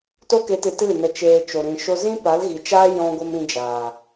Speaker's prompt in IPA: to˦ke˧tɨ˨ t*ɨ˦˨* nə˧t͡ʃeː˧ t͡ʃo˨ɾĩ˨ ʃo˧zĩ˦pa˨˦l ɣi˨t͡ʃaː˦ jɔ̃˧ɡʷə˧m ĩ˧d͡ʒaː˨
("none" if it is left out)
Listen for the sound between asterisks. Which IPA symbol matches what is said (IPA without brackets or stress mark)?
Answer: ɨ˦˨